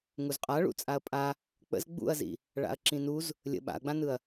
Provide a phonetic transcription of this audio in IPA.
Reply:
ŋuzqʼa ɭṵt͡sʼaɐ̯pʼa | k͡pə̰z ɡ͡bṵɐ̯zḭ | ɭa̰ɐ̯ǁĩnuz | lʲə̰ ɓa̰ɐ̯ɡ͡bãnɯɐ̯

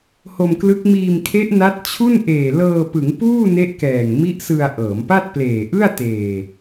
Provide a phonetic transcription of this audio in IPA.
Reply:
ho˧mklɯ˦˥k̚ miː˧mkʰe˦˥ʔ na˦˥t̚t͡ɕʰu˥˩n ʔeː˨˩lɤː˧pɯ˩˦ŋ puː˥˩ ne˦˥ʔkɛː˨˩ŋ mi˦˥ʔ sɯ˧a̯ʔɤː˩˦m pa˥˩t̚pleː˨˩ʔɯ˥˩a̯teː˨˩

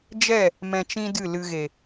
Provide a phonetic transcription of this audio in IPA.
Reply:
d͡ʒɛ˦˨ | mɛ̃˧t͡ʃĩ˦dɨ˦˨ lɨ˨ɣe˨

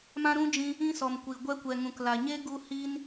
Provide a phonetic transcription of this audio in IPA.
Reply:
mã˦ɾũ˦d͡ʒĩ˧ | ĩ˦sɔ˨mkʷi˨ ɡʷɛ˧kʷɛ˨ ŋũ˨kla˨ɲe˦ ɡu˦hi˦n

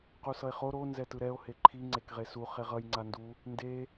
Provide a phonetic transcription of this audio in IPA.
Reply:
qusʌe̯χo ɾo nzɛtɯɾɛo̯ heǃʰi ŋ͡ǀekʁesu χeʁʌj ŋ͡ǀandu | nde

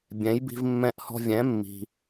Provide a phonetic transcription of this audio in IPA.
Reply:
bʲɛ̃˩˥jbi̤˧v mːɛ̃˧ʔhɔ̤˧vʲɛ̃˩˥ mːi̤˩

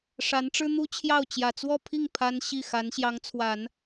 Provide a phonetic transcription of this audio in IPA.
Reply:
ʂa˧˥nʈ͡ʂɻ̩˥n̪u˥t͡ɕʰjɑ˥˩ʊ̯ t͡ɕjä˨˩t͡swɔ˥˧pʰi˥˩ŋ pʰa˥n ɕi˥˩ xa˧˥nɕjɑ˧˥ŋt͡sʰwa˨˩˦n

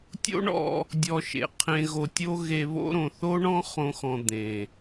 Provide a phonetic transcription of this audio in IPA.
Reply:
tʲo̰˦ɳɔ̰˧ | dʲɔ˧ʃḛ˨ qʰẽ˧ɣo˧tʲo˦ ɣe˧βo̰˦ɾõ˨ θo˦ɳɔ̃˦ χõ˦xɔ̃˧ d̪ẽ˨

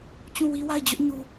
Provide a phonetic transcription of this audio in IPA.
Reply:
t͡ɕũ˦˨wi˦wa˦˨ɪ̯ d͡ʑʊ˦ʔɲu˨

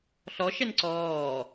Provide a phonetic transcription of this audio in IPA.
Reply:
ɬɔʃɛn ǀɔː

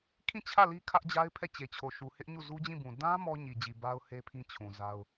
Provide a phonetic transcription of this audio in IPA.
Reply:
kʰĩ˦˨t͡ɕʰä˦˨ li˦ kʰä˦ʔd͡ʑa˦ɪ̯pʰɛ˦˨ t͡ɕe˨t͡ɕʰo˨ʃu˨hɪ˦ʔ ɲu˦˨zu˦d͡ʑĩ˦˨bũ˨ dã˦ mɔ˦ɲi˨d͡ʑi˨ ba˦ʊ̯he˦pʰĩ˦ t͡ɕʰũ˨za˦ʊ̯

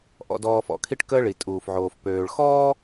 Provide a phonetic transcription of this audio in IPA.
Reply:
ʔɔ̰˨dɔː˨fɔ̰˨ kʰi˦ʈkəː˦ɭi˨ tʼuː˨fʕoː˨fpøː˨ɭ xɔː˦

